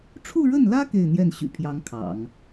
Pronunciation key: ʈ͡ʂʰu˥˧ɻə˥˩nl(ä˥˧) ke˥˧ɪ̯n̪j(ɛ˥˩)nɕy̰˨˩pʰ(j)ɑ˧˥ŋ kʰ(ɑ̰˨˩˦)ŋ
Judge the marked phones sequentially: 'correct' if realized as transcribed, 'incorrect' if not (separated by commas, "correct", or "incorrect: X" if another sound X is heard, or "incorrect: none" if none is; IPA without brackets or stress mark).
incorrect: ä˥, correct, correct, correct